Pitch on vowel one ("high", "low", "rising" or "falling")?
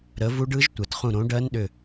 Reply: rising